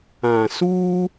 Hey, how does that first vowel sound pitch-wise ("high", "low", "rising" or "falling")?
low